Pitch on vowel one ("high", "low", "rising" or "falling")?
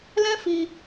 high